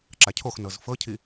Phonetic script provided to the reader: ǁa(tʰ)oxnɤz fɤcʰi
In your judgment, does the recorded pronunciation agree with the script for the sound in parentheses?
no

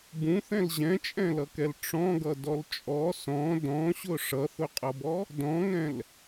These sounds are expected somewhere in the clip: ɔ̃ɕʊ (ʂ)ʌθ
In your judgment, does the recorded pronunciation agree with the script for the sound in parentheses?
yes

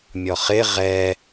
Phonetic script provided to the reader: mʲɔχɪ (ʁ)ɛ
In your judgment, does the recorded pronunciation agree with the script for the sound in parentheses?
yes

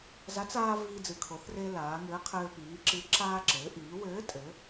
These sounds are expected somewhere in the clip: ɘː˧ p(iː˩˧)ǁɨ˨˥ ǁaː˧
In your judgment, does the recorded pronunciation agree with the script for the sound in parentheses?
yes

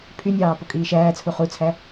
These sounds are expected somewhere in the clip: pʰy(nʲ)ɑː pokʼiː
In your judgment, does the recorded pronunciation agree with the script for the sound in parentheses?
yes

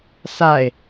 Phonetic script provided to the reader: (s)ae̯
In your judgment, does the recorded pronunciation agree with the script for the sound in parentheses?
yes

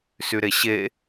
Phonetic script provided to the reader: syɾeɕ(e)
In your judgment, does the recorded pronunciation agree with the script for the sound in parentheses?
yes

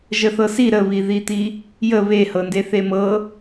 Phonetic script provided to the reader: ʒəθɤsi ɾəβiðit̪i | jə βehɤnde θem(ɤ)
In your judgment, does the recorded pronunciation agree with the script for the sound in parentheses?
yes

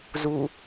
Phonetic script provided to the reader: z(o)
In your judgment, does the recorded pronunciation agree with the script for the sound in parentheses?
no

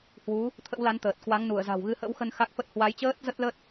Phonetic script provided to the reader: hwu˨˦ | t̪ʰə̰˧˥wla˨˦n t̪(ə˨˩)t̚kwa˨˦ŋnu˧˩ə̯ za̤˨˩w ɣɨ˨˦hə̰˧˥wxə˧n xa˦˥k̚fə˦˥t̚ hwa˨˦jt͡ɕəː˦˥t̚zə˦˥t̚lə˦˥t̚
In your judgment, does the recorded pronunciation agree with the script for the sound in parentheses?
no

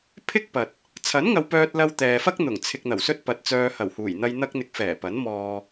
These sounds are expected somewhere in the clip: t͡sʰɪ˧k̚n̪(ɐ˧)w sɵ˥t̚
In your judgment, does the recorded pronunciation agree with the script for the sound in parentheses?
no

